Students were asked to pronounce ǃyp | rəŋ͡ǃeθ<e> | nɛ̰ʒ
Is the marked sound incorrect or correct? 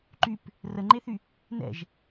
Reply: incorrect: y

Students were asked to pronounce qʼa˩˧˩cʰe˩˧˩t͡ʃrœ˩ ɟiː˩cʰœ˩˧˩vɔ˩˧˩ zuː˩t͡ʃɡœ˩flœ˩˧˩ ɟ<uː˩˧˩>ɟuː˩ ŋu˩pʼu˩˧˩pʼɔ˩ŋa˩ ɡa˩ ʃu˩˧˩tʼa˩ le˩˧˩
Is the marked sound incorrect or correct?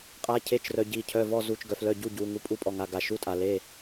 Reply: incorrect: u˩˧˩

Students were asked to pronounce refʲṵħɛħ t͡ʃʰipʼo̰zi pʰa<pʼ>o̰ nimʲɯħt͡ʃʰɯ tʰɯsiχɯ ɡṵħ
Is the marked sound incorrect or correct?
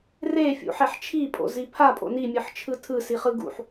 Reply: correct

